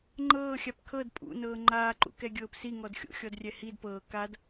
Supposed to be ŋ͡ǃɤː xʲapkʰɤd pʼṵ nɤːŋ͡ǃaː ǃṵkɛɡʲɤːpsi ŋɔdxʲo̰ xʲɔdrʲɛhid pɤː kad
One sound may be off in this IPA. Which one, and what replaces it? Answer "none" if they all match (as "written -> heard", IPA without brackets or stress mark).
none